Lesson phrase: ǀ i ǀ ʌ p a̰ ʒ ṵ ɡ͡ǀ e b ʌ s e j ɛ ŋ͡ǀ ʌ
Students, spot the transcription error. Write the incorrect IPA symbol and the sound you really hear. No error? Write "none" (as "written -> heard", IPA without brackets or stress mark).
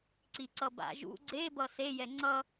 p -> b